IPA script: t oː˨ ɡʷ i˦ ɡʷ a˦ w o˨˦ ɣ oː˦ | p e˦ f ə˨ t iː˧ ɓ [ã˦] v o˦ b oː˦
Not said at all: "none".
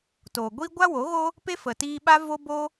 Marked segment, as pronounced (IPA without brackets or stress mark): a˦